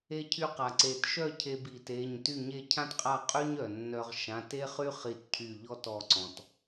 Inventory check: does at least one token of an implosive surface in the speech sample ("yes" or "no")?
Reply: no